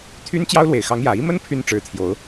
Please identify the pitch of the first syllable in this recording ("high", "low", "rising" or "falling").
high